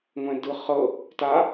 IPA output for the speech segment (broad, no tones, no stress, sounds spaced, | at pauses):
ŋʷ ɛ̃ d ɯ χ ɤ | t a